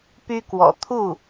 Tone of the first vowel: high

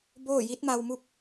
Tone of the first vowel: falling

